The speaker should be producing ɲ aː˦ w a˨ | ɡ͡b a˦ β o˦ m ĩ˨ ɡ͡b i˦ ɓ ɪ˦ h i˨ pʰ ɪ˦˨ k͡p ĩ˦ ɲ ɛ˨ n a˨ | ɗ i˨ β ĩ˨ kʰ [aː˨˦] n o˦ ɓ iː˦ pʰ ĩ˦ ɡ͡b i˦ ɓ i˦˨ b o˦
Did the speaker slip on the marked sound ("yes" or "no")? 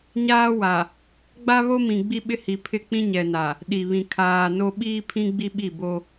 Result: yes